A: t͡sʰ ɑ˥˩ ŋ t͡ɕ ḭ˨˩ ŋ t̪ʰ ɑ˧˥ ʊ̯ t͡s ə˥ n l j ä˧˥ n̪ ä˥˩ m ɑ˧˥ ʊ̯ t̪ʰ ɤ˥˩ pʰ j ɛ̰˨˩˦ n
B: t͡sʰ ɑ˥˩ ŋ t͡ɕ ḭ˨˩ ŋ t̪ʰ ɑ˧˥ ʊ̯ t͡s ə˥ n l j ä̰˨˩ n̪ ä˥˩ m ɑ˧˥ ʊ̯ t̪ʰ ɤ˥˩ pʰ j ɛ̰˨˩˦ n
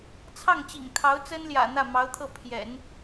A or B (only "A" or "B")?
B